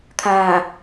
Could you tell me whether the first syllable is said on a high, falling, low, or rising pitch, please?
low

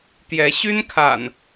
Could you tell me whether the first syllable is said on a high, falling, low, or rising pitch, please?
rising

